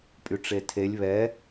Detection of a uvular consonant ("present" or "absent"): absent